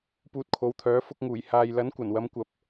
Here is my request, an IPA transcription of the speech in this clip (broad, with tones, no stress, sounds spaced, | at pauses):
p uː˧ t̚ kʰ o˨˧ w t̪ʰ œː˨˥ f ʊ˧ k̚ ŋ uː˨˩ j h aː˨ j l ɐ˨˥ n kʷ ɐ˨˩ n w ɐ˨˧ m kʷ ɐ˨ p̚